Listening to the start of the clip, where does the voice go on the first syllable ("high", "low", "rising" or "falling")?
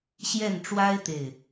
falling